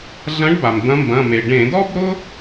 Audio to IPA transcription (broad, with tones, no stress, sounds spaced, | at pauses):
ɮ ɐ̃˨˦ ɖ b a˩ m d̪ ɐ̃˨˦ m b ɐ̃˩˧˩ m e˩ ɖ ẽ˧˩˧ d ɔ˥ b ɾ ʊ˥